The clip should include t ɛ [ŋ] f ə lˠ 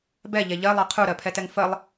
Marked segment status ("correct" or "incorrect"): correct